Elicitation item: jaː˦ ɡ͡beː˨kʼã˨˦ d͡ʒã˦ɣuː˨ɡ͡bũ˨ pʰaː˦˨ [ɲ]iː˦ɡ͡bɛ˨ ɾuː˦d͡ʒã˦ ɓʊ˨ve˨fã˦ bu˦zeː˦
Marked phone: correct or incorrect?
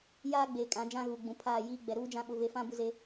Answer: incorrect